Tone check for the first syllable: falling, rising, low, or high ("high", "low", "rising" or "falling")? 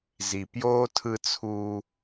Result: low